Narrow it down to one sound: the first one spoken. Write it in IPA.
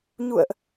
ɲ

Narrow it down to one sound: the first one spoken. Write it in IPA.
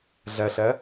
ɮ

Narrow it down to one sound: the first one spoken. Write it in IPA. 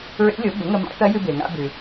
ɹ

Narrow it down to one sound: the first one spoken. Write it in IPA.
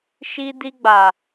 ʃ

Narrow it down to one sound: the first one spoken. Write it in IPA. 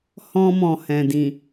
h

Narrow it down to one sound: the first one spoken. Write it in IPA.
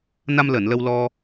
n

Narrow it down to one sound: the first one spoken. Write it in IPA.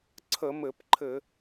ǀʰ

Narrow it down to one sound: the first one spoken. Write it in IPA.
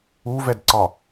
u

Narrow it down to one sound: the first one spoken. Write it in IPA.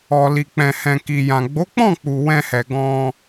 ɔ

